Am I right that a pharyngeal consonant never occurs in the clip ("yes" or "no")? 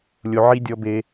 no